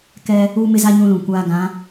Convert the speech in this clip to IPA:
k ɛ˦ | uː˦ m ɪ˦ z a˦ ɲ ũ˦ l ũ˨ kʷ aː˦ ɡ ã˨˦

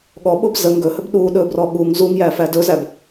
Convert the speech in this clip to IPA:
ɠ ɔ ɓ o b z ə ŋ ɡ ɵ h ɵ b ɗ u ɗ ɵ b r ɔ ɠ u ŋ z u ŋ j æ f æ d ɵ z æ b

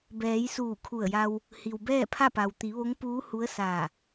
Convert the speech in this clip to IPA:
b ɛː˩˧ j s uː˧˩ kʰ u˧˩ ə̯ j a˧ w | h i˩ w b ɛː˥˨ pʰ a˥˨ p a˩ w t̪ i˩˧ ʋ o˧˥ ŋ p uː˧˥ h u˧˥ ə̯ s aː˧˩

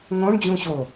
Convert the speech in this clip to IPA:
ŋ õ ɳ d͡ʑ ũ ɕ o

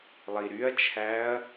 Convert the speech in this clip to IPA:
lˠ i ɾ y ɐ̯ t͡ʃʰ æ ɐ̯

